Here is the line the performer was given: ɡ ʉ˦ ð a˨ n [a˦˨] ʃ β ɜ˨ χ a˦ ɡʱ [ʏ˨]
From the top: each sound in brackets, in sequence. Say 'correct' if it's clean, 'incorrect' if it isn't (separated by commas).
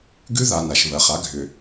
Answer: incorrect, correct